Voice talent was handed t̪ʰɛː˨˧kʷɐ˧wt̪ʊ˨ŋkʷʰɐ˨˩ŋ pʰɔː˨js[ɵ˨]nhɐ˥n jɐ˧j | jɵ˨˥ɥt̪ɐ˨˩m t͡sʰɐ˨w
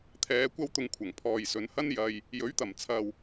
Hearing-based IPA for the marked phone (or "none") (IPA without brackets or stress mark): ɵ˨˧